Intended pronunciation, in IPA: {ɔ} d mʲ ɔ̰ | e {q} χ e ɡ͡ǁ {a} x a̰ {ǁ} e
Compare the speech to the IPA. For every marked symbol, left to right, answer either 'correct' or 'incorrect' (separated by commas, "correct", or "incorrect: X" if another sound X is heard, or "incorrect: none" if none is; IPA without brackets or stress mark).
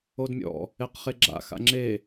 incorrect: o, correct, incorrect: a̰, incorrect: ŋ͡ǁ